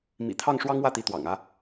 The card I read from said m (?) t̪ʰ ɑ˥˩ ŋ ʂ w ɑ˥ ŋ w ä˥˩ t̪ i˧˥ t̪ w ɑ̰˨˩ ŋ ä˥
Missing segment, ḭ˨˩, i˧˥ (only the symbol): ḭ˨˩